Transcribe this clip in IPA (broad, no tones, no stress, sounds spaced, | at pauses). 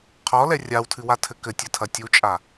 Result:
qʰ ɔ l ɛ rʲ a w tʰ ɨ w a tʰ ɘ k ɘ tʲ ɘ tʰ ɐ tʲ u t͡ʃʼ a